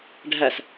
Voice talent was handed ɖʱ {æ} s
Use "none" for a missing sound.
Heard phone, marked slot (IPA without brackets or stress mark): æ